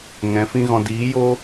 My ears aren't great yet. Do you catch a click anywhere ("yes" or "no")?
no